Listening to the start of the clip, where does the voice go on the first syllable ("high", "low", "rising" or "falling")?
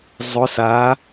rising